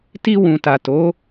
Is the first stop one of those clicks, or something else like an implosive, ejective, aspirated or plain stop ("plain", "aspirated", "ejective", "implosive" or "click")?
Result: plain